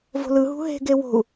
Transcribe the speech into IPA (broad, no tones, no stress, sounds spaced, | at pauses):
v o̤ l ɯ ɦ ṳ ɦ e̤ ɡ e w o̤ u̯